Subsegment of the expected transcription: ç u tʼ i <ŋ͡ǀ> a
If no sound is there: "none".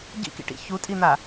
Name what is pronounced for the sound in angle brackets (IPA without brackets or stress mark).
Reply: n̪